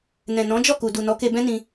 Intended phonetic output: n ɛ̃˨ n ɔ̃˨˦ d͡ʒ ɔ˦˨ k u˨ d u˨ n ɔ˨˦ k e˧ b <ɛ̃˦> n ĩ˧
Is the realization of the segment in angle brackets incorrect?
no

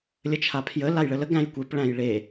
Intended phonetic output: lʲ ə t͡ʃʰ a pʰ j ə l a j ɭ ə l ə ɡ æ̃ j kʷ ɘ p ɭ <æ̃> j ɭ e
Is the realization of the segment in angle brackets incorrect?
no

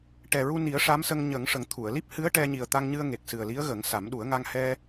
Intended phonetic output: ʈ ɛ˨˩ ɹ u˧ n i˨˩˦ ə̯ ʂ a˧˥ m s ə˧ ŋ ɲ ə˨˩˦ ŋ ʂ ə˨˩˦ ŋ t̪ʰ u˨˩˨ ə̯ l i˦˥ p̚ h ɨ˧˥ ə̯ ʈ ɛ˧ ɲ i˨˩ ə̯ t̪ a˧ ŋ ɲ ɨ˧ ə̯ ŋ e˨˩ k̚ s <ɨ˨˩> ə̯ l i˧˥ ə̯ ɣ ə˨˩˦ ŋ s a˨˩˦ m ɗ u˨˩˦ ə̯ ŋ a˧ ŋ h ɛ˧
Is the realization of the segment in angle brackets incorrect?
no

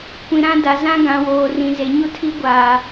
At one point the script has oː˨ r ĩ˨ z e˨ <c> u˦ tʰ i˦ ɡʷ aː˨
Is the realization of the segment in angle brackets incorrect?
yes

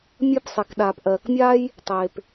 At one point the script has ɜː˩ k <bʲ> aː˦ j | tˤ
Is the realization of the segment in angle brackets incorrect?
yes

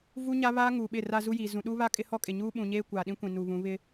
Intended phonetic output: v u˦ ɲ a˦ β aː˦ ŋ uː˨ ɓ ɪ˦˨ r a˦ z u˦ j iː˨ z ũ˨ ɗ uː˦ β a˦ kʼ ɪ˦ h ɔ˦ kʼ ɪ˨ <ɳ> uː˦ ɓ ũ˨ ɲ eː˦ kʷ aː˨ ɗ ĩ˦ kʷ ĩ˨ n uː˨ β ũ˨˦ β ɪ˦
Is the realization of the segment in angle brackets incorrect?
yes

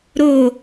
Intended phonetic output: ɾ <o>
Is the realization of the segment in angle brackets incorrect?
no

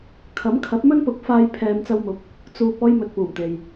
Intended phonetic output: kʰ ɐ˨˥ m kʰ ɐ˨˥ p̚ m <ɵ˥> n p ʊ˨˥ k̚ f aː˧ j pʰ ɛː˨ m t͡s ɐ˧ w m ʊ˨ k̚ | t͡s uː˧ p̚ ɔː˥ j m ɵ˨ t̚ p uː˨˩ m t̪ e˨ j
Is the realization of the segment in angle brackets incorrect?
no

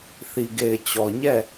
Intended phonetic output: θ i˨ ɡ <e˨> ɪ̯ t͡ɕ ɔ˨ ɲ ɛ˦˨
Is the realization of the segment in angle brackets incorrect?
no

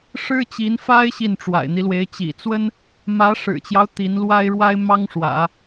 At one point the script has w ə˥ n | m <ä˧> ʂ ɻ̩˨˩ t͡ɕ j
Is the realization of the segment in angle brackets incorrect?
yes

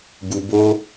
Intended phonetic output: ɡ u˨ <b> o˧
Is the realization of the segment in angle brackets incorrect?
no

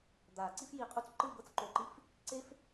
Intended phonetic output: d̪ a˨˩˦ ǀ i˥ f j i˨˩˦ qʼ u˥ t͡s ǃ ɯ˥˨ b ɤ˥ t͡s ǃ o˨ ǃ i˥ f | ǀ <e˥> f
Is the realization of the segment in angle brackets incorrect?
no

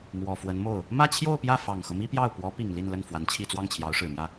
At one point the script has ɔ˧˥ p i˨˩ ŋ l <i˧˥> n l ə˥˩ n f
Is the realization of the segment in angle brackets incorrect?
yes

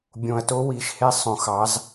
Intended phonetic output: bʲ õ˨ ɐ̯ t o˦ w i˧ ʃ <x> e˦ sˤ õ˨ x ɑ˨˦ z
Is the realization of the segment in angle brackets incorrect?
yes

